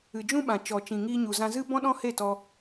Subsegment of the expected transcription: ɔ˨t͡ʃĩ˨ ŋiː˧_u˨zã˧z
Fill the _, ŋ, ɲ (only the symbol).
ɲ